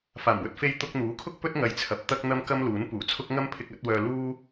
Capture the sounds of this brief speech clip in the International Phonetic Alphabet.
f aː˨˩ m w ɵ˧ t̚ f e˧ j t̪ ʊ˧ k̚ n̪ uː˨˥ kʰ ʊ˥ k̚ p ɵ˥ t̚ ŋ ɐ˧ j t͡sʰ ɐ˧ p̚ t̪ ɐ˥ k̚ n̪ ɐ˧ m k ɐ˥ m l uː˨˥ n p uː˨˩ t͡sʰ ʊ˥ k̚ ŋ ɐ˥ m pʰ ɪ˧ k̚ ɐ˨˥ t̚ w œː˧ l uː˥

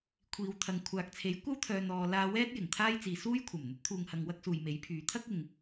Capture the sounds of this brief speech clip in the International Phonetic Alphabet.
kʷʰ iː˨˧ w t̪ʰ ɐ˨ ŋ kʷʰ aː˨ k̚ t͡sʰ e˨˥ j kʷ ɐ˥ w t̪ʰ œː˨ n̪ ɔː˨ l aː˧ w ɛː˥ t̚ j ɪ˨˩ ŋ t̪ʰ aː˥ j t͡s iː˨ s uː˥ j kʷʰ ɐ˨˩ m n̪ ɵ˨˥ t̚ t̪ʰ uː˨ ŋ h ɐ˨ ŋ w ɐ˥ k̚ s uː˨ j m e˨˥ j pʰ yː˨˥ t̪ʰ ɐ˥ k̚ ɪ˨ ŋ

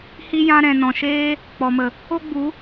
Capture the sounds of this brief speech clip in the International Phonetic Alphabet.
h i˦ j ã˦ ɾ ɛ̃˨ n ɔ̃˨ ʃ eː˦ | k͡p ɔ˨ m ə˨ | o˦ ɡ͡b u˨˦

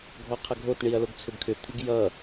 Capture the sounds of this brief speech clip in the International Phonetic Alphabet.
ɡʱ ɔ qʰ ʌ ɡʱ o t ɳ i ɐ̯ l o ɡ t͡sʰ ʏ b kʰ ʏ t̪ʰ i ɡ j ʌ

